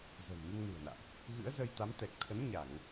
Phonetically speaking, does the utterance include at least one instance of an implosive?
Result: no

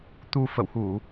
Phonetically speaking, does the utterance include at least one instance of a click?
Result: no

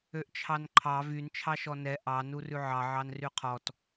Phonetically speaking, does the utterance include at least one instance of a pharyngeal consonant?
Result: yes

